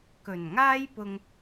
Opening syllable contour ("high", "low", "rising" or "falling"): low